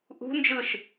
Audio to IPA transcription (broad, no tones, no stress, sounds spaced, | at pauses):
ʔ ṳ n d͡ʒ ɯ ʃ